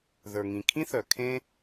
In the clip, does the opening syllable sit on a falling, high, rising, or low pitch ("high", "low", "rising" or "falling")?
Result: low